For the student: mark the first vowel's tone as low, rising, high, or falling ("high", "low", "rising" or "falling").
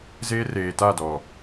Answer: high